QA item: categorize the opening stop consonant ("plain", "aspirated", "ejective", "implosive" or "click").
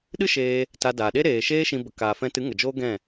implosive